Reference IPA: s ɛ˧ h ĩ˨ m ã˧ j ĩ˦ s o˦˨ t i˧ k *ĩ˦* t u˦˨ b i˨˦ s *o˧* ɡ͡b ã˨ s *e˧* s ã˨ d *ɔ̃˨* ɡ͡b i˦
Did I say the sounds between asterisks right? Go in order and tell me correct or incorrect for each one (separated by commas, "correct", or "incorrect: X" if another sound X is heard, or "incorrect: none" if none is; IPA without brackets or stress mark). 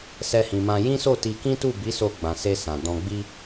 correct, correct, correct, incorrect: ɔ̃˧